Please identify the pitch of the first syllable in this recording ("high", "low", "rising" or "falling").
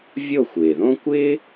falling